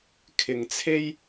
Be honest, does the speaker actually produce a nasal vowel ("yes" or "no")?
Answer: no